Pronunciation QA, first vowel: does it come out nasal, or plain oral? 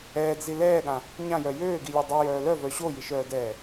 oral